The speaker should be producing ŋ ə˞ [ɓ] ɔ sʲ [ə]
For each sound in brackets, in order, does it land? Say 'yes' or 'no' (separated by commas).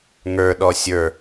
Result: no, no